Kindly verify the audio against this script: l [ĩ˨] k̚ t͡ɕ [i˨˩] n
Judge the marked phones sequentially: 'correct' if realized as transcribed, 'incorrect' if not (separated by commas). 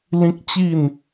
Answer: incorrect, incorrect